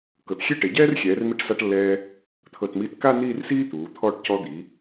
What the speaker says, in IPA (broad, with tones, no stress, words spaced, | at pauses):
kɤ˩˧txʲe˥˧ʈe˩˧ɟɛː˥r xʲɛː˩˧rmi˧ʈsa˧ʈlːɛː˧ | t̪ʰɤ˧˩tmiː˧tka˥˧ n̪iː˥˧rsiː˥t̪uː˩˧ t̪ʰɔː˧˩ʈ cɔ˧d̪i˩˧